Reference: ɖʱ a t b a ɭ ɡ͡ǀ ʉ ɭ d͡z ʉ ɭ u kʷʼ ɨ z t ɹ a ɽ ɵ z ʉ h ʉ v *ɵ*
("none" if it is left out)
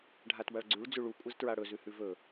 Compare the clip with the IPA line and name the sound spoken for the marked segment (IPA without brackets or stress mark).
ɵ